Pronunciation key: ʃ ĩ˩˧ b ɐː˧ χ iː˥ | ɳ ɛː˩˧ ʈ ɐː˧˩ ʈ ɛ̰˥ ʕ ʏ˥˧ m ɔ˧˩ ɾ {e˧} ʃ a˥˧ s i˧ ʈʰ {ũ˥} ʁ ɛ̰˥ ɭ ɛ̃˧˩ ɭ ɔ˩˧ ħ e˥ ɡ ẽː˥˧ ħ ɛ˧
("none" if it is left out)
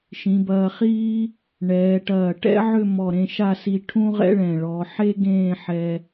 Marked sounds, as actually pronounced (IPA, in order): ẽ˧, ũ˥

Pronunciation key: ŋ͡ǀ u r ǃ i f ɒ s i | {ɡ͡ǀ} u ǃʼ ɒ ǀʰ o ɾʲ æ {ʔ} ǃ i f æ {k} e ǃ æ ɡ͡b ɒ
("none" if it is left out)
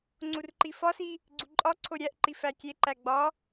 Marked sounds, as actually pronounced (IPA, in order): ɡ͡ǀ, ʔ, kʲ

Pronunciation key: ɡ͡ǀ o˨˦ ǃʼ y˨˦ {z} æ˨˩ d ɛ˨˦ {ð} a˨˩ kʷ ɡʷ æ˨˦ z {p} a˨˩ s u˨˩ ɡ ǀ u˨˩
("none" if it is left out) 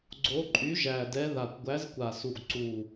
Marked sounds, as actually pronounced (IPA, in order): ʒ, ð, kʷ

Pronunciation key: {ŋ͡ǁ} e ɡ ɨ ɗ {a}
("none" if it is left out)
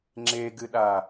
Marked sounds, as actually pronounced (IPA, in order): ŋ͡ǁ, a

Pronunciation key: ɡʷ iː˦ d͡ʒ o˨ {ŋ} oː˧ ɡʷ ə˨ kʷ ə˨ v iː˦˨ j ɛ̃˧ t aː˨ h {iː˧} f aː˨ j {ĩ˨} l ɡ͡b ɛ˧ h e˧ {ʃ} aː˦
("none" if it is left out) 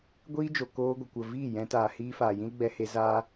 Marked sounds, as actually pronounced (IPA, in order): k, iː˧, ĩ˦, z

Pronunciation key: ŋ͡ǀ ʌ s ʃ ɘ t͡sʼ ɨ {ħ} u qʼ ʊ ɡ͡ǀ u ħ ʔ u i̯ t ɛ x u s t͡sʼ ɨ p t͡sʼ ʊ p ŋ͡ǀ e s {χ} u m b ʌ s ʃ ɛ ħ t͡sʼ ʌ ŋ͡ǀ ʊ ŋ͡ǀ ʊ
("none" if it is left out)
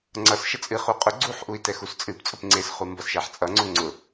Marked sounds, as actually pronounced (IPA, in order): χ, χ

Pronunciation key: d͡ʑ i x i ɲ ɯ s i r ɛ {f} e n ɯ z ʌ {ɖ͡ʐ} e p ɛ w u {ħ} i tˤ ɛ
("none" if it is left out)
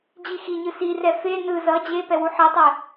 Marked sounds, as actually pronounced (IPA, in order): f, d͡ʑ, ħ

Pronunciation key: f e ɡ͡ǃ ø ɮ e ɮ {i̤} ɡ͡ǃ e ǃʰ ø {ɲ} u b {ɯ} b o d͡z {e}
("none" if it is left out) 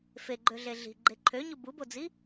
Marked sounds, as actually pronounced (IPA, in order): i̤, ɲ, u, i

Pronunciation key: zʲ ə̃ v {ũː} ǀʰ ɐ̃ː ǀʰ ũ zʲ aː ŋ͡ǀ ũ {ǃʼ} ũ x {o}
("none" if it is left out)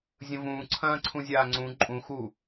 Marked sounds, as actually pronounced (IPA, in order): ũː, ǃʼ, u

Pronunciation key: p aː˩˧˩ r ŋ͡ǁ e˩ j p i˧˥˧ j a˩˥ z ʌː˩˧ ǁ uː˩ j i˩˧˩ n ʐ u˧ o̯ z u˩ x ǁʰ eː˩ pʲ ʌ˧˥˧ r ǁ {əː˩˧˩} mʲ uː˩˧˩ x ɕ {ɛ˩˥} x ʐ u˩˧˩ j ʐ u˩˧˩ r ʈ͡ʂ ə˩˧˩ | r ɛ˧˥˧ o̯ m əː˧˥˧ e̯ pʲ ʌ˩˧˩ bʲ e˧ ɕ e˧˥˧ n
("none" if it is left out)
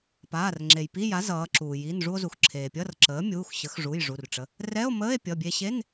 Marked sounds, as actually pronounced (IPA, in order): əː˩˥, ə˩˥

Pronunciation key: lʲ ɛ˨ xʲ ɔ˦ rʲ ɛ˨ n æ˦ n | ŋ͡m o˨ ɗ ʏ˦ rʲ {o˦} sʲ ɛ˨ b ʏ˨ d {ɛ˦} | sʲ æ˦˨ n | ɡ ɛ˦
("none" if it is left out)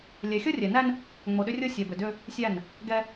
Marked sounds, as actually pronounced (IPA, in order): o˦, ʏ˦

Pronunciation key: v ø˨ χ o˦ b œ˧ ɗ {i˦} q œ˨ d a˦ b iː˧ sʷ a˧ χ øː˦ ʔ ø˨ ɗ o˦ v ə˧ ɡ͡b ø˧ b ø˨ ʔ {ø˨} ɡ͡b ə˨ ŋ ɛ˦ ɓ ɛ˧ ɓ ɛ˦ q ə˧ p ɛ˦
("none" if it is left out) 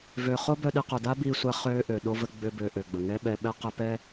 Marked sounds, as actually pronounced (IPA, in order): i˧, ø˨

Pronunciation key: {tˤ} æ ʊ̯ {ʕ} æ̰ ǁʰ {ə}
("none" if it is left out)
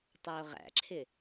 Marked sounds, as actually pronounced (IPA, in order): tˤ, ʁ, ɪ

